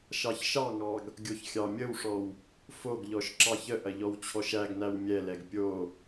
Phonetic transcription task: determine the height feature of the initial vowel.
low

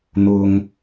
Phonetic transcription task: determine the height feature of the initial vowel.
high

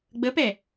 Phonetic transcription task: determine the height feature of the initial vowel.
mid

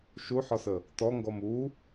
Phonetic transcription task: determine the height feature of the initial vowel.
high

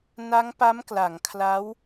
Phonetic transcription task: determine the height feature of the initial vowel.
low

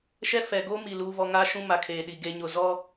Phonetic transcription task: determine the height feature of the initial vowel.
mid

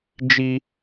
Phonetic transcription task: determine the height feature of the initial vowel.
high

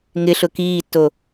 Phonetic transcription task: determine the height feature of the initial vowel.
high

